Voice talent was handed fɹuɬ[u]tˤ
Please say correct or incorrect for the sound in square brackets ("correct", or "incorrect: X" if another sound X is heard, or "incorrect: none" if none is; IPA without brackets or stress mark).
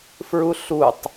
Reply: correct